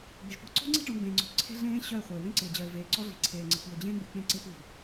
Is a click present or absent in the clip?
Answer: present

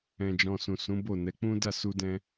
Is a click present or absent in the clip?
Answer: absent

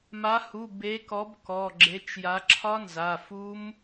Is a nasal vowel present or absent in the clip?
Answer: absent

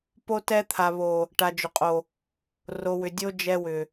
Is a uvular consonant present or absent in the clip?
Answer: present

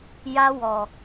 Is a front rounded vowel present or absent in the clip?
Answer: absent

